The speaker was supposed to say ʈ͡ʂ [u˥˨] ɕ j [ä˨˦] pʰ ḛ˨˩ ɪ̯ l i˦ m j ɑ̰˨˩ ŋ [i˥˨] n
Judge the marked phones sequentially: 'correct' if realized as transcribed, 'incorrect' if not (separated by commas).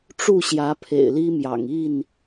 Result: correct, correct, correct